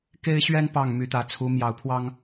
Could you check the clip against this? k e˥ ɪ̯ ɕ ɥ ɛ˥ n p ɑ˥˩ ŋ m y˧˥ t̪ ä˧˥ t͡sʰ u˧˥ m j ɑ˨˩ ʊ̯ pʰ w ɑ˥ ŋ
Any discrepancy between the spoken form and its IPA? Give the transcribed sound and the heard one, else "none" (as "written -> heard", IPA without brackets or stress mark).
none